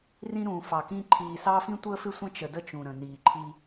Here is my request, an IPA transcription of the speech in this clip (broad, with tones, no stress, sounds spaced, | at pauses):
r ĩ˦ ɾ ũː˨ f ɑ˨ k ĩ˦ ǃʰ iː˨ s ɑ˦ f ĩ˦ tʷ əː˦ f ɪ˦ sʷ ə̃˦ t͡ʃ ə˨ d ə˦ t͡ʃ ũ˨ ɾ ə̃˨ n iː˨ ǃʰ i˦